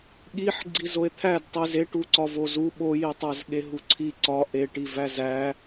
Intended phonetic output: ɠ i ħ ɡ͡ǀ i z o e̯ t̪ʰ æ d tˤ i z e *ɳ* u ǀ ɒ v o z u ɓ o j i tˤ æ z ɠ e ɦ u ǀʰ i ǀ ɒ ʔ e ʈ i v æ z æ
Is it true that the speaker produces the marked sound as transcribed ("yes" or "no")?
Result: no